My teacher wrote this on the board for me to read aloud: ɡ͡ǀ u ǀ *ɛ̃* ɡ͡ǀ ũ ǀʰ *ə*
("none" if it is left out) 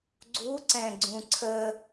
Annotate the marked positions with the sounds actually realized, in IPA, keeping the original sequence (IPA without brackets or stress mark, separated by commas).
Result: ɛ̃, ə